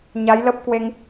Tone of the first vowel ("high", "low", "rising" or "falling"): rising